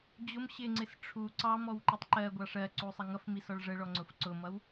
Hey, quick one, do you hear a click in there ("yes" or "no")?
yes